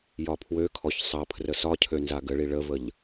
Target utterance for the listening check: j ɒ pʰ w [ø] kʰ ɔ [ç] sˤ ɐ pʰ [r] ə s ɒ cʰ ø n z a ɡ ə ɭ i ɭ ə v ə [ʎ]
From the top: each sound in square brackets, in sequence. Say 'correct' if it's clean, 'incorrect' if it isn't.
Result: correct, correct, correct, correct

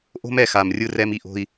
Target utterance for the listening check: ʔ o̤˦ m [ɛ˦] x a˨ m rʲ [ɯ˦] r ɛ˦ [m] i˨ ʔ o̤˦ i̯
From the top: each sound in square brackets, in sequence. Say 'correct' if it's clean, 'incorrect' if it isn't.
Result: incorrect, correct, correct

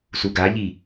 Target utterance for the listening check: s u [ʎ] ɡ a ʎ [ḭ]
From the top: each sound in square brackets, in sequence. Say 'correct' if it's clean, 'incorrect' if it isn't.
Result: incorrect, incorrect

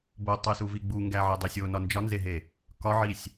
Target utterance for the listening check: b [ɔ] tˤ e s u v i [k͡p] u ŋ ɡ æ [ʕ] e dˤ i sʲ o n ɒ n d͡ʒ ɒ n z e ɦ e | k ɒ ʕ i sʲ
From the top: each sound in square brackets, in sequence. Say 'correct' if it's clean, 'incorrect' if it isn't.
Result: incorrect, incorrect, correct

